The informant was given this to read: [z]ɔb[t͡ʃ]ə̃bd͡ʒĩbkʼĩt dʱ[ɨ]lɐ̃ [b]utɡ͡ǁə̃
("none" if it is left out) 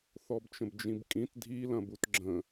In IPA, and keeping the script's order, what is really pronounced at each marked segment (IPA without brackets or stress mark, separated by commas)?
θ, t͡ʃ, i, b